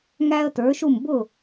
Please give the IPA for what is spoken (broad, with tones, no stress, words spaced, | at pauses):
ŋæ˥ə̯ tə˞˩˥ʃu˥˩m bʊ˥˩